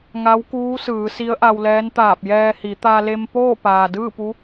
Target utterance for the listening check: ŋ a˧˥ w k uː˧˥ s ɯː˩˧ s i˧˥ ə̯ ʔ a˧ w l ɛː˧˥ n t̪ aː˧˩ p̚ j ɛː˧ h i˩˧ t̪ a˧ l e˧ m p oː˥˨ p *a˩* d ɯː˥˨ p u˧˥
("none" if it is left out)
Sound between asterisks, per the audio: aː˩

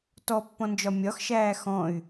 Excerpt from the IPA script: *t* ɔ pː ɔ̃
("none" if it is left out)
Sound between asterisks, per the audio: t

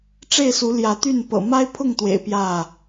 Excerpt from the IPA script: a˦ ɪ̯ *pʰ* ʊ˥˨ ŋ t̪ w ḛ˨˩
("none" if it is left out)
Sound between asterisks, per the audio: pʰ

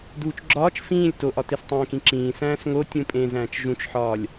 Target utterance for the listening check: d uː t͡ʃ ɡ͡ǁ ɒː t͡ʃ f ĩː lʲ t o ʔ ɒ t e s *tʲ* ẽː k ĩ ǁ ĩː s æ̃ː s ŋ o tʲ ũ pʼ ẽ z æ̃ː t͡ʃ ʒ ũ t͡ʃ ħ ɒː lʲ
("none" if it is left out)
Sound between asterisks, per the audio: tˤ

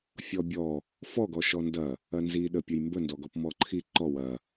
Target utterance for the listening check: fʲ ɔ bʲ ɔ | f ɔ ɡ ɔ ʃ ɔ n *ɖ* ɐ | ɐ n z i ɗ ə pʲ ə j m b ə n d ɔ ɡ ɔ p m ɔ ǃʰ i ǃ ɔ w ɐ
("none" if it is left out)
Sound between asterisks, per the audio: d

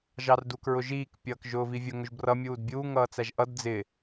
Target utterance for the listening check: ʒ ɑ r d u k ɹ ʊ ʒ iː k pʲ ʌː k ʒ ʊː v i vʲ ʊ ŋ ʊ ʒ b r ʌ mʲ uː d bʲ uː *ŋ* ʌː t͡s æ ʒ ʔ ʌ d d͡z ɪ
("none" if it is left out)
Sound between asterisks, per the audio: ŋ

